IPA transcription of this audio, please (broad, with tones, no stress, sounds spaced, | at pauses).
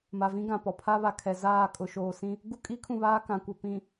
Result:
m a˨ v ĩ˦ ɡ ã˨ p ɔ˨ pʰ a˦ β a˨ kʰ ɛ˨ z aː˦˨ kʼ ʊ˨ ʃ oː˨ s ĩ˦ | ɡ u˦ kʼ iː˦ kʰ ũ˦˨ β aː˦ k ã˨ kʷ ɛ˨ p ĩ˨